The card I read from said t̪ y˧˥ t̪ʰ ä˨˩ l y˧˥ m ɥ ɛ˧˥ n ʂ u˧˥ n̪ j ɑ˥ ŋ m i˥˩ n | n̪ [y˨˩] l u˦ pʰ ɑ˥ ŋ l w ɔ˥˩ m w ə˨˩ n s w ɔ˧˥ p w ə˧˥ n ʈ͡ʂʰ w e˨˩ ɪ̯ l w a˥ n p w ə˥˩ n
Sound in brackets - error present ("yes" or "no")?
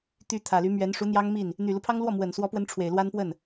no